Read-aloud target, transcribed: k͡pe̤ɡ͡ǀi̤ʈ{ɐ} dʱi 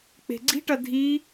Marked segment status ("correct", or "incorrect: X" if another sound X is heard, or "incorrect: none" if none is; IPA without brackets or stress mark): correct